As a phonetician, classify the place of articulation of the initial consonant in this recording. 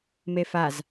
labial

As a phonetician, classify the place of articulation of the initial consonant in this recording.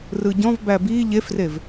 alveolar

